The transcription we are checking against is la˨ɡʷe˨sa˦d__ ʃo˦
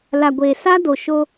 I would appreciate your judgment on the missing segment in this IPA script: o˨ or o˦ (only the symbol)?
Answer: o˨